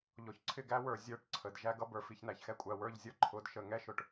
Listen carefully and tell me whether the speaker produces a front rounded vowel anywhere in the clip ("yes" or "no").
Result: no